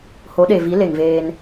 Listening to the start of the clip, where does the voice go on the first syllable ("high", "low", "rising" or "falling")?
rising